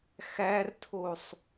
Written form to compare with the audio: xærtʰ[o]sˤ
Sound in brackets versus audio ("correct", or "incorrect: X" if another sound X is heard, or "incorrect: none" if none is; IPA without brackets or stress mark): correct